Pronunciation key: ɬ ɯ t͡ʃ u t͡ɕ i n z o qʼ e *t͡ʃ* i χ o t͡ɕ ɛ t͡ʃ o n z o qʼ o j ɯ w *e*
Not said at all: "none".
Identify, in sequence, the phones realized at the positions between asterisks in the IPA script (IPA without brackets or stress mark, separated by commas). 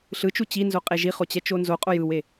ʒ, e